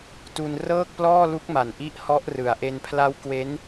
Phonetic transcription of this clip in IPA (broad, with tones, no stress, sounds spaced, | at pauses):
t u˧ n r ɤː˥˩ k̚ p l ɔː˥˩ l u˦˥ k̚ m a˨˩ n ʔ i˦˥ ʔ h ɔ˦˥ ʔ r ɯ˨˩ a̯ ʔ e˧ n pʰ l a˦˥ w k w e˦˥ n